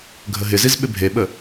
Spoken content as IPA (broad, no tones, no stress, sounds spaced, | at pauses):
ɡʱ ə ɦ ɪ z i z ɓ ɪ bʱ e ɓ ə